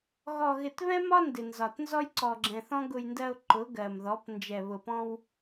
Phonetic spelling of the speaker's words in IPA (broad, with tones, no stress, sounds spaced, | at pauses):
ɣ ɔ˨ ɣ ɪ˨ t β ɛ̃˦ m ɒ˦ n d ɪ˨ n z ɒ˨ t n z ɔ˦ j ǀ ɔ˨ ɡ͡ǁ ɛ̃˨ θ ɔ̃˦ ɡ ʊ˨ j n d ɜ˨ ʊ̯ ǃ ʊ˨˦ ɡ ɜ˨ m ð ɔ˨˦ p n d͡ʒ ɛ˨ β ʊ˨ p ɔ̃˦ w